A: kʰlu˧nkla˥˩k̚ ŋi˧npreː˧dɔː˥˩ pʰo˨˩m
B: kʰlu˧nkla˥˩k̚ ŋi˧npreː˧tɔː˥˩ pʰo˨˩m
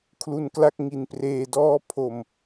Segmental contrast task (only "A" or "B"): A